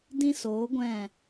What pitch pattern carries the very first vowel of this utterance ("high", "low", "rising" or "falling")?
high